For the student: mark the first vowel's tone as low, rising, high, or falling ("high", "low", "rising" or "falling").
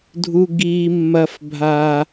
high